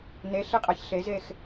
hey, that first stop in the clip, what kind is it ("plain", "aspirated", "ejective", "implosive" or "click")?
ejective